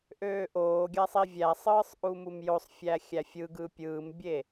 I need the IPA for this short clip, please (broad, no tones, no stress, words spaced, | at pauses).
ʔøːʔoːɡʲæ sˤivʲæsˤɯːsˤ ʔumumjosˤ fʲæxʲæfʲɯɡɯ pʲɯːmbʲe